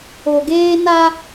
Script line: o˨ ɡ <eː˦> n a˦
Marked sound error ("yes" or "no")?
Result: no